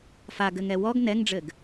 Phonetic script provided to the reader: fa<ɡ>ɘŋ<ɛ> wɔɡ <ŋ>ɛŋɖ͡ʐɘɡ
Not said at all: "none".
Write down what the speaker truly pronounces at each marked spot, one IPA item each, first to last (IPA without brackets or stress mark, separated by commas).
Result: ɡ, ɛ, n